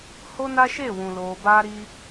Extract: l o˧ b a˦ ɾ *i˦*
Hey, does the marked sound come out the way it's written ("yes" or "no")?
yes